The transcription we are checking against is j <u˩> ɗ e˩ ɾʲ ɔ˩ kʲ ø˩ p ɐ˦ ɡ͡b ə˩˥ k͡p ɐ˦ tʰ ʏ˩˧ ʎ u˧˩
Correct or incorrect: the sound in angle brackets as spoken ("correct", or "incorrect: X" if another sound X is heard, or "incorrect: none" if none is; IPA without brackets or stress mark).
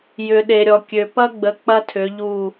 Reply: incorrect: ʏ˩